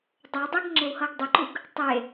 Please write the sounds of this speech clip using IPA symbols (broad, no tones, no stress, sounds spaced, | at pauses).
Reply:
dˤ ɤ dˤ ɤ ɡ ŋ͡ǁ e w h ɤ ɡ dˤ o ǃ u ɡ | tˤ e